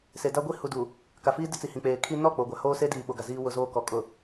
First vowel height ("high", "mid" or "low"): mid